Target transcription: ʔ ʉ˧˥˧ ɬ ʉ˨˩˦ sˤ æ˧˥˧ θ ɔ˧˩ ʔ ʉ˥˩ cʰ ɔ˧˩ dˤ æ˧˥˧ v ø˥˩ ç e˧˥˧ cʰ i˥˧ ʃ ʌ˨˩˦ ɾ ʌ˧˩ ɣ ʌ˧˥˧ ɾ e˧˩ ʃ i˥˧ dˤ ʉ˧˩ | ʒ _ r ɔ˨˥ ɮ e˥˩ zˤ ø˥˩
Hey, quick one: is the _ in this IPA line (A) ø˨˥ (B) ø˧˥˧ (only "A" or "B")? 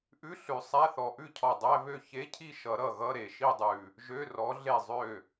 B